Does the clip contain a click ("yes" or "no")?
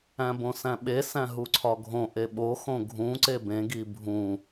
yes